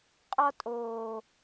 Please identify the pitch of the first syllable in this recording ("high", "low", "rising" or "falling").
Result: high